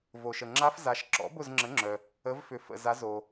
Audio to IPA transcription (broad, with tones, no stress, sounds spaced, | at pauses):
v o˩ ʃ ə˩ ŋ͡ǁ a˦˥ f z a˩˧ ʃ ǁ ɔ̰˩˥ b ʊ˦˨ z ŋ͡ǁ ə˩˥ ŋ͡ǁ œ˩ | ə˩˧ v f ʏ˩ f ə̰˩ z a˩˧ z o˩